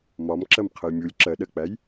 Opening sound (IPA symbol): m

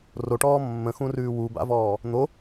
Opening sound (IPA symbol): r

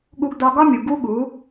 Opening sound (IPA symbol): ɠ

